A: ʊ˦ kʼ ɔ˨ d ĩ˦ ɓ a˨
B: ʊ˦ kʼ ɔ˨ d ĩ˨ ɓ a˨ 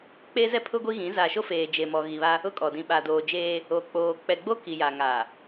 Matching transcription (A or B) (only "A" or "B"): B